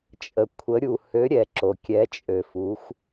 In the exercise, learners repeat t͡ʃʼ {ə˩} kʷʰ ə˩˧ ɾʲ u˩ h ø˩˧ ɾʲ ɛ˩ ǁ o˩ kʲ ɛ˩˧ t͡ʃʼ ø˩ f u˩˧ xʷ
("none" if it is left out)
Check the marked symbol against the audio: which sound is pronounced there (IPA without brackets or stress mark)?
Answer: ə˩